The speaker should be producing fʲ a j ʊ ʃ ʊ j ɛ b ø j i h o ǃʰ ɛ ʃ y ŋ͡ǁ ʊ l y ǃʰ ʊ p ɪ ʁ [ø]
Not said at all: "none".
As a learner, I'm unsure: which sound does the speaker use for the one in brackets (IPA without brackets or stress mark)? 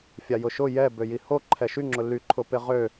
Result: ø